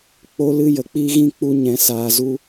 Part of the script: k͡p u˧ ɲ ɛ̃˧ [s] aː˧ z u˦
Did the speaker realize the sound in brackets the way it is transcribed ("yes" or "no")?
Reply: yes